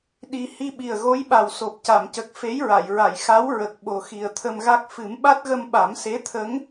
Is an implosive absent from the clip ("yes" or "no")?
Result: no